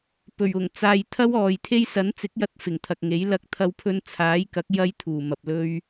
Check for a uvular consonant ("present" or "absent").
absent